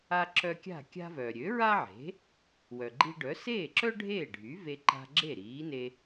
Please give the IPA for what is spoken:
a˧ ǁ œ˧ kʲ a̤˥˩ kʲ a̤˥ v œː˩ ɾʲ ø˩˥ ɹ a˥ ʕ e̤˩˥ | w œ˩ ɡ͡ǃ i˧ ɖ œ˩˥ s eː˥˩ ǁ œ˥ ɖʱ eː˥˩ ɖʱ y˩˥ v e˧ ǃ a̤˧ ɡ͡ǁ e˥˩ ɾ iː˩˥ n e˧

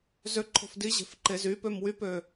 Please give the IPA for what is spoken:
z ø ǃʰ o̤ f d i ʑ e̤ f ǃ e z y p ø m w y p ø

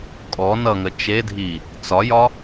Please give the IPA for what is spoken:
kʼ ɔ n ʌ ŋ ə t͡ʃ e dʱ i | t͡s ɒ j ɒ

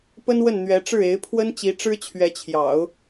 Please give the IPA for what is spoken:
p ə˥ n w ə˥˩ n n̪ ɥ ɛ˧˥ ʈ͡ʂ ɻ̩˥˩ e˧˥ ɪ̯ pʰ w ə˥ n t͡ɕ i˧˥ ʈ͡ʂ ɻ̩˥ t͡ɕʰ ɥ ɛ˧˥ t͡ɕʰ j ɑ̰˨˩˦ ʊ̯

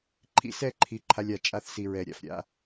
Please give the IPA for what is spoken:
ǃʰ ḭ˧ s ɛ˦˨ ǃʰ i˨ ǃʰ a˦ lʲ a˦˨ t͡ʃʼ a˧ θ s i˨ ɹ ɛ˨ ɾʲ a̰˨ f ɾʲ a̰˦

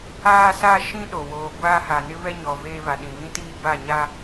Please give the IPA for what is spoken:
aː˦ s a˦ ʃ ĩ˦ ɗ o˨ w oː˨ ɡʷ aː˦ h a˨ n ɪ˦ β ɛ˦ ɲ ɔ˨ v eː˦ β a˨ ɗ ĩ˨ β ĩ˦ t iː˦ b a˦˨ ɲ a˦

